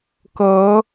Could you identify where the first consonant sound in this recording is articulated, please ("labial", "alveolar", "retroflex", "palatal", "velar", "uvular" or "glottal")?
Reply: velar